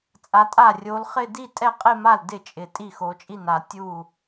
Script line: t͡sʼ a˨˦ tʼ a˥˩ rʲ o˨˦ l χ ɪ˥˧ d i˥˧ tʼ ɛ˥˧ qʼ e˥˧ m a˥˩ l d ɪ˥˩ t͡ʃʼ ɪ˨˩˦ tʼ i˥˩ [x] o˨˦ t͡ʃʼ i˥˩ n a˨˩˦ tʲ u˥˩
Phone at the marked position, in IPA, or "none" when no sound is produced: x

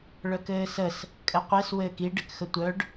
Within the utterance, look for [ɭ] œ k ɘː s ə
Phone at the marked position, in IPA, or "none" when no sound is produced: ɭ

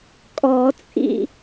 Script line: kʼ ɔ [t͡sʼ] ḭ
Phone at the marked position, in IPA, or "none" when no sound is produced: t͡sʼ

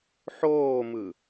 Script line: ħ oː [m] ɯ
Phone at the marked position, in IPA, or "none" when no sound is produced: m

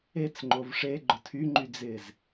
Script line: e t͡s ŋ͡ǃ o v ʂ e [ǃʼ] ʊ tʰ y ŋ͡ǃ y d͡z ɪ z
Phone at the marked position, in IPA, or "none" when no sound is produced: ɡ͡ǃ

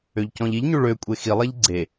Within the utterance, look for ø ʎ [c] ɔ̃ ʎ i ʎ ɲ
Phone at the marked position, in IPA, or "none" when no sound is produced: c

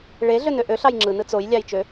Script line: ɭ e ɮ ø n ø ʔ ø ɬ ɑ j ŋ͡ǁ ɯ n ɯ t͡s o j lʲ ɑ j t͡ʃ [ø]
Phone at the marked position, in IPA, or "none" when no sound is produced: ø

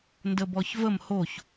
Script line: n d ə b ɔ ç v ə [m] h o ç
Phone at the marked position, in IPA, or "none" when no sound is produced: m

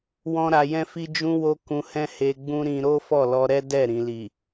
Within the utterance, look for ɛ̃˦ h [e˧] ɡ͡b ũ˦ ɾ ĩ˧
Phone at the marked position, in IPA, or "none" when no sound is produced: e˧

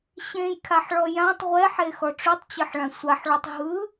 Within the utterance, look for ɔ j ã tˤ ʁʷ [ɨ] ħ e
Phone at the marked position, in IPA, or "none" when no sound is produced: ɛ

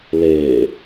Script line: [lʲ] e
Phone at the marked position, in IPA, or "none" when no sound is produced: l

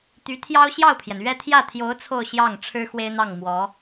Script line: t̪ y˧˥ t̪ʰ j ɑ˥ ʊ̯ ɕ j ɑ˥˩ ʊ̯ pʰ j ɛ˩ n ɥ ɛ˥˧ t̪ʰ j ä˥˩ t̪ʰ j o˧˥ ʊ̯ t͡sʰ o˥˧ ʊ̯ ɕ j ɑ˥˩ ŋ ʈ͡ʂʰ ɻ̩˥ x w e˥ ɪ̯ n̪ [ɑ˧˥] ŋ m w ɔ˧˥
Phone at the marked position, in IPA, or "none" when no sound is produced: ɑ˥˩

